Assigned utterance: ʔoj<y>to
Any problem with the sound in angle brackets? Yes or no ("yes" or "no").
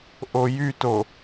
no